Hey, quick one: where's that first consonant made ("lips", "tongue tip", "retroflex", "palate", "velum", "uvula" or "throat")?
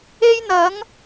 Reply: palate